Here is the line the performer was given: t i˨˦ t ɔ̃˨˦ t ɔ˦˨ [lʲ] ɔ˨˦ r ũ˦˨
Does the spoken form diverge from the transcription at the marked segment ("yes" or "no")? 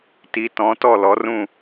yes